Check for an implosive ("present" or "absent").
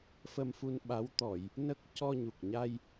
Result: present